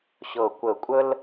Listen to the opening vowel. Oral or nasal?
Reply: oral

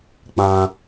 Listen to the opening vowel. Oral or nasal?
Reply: nasal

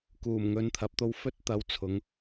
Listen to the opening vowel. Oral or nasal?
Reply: oral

